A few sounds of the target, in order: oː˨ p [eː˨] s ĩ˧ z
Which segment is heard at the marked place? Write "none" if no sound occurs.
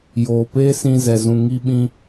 eː˦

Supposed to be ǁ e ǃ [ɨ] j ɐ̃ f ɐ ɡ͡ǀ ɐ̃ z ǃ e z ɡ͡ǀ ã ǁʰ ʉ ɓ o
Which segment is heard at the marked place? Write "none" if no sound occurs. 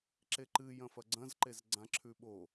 ɨ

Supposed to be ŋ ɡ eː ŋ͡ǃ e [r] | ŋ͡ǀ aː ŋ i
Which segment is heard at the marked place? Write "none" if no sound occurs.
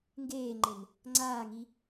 n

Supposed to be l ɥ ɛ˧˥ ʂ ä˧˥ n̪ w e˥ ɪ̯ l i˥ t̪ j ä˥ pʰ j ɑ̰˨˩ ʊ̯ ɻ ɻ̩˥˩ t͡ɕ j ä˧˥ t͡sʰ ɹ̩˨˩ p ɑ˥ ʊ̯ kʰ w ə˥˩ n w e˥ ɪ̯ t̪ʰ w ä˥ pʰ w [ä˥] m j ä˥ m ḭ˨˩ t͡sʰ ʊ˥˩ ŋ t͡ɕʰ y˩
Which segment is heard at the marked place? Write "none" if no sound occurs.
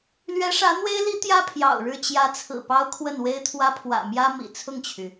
ä̰˨˩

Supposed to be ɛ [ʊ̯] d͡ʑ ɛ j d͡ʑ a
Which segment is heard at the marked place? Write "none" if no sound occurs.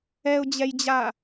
ʊ̯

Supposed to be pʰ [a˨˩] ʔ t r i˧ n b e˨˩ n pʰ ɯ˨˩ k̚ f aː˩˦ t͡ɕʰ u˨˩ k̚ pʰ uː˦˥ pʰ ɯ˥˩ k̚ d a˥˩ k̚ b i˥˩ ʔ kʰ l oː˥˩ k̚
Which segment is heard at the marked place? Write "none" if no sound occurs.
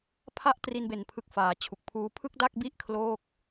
a˥˩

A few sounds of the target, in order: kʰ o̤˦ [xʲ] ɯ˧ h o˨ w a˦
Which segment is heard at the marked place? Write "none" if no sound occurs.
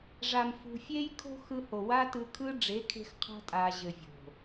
x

